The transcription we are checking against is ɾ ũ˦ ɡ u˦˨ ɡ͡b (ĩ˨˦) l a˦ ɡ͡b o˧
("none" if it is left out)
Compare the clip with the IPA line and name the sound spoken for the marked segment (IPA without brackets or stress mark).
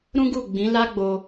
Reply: ĩ˨˦